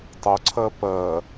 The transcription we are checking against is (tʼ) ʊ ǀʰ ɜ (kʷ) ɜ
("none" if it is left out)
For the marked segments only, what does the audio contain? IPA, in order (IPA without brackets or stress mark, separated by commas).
tˤ, p